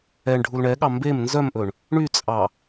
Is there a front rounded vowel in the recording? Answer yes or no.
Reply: yes